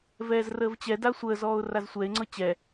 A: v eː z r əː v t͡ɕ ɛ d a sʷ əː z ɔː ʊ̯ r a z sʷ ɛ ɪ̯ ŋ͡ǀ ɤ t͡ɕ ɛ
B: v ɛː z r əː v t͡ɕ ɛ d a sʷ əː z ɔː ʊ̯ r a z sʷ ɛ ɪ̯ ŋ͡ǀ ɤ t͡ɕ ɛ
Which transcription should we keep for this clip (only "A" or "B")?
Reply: B